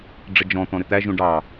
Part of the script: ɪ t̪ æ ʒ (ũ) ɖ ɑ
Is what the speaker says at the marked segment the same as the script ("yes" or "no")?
yes